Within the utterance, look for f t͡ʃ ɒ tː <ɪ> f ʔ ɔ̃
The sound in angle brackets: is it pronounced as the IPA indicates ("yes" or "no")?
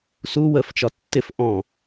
yes